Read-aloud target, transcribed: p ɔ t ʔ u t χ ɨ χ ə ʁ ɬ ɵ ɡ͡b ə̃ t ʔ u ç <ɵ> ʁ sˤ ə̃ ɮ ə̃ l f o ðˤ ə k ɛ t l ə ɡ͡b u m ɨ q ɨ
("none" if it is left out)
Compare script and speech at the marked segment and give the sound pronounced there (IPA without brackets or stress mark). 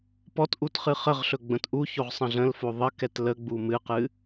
o